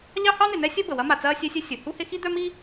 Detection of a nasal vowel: absent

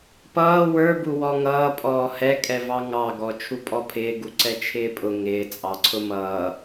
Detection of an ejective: present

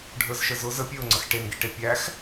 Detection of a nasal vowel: absent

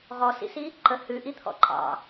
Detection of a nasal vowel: absent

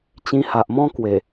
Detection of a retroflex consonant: absent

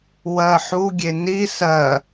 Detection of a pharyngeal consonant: present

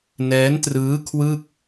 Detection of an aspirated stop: present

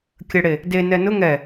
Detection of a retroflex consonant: present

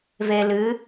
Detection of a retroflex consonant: absent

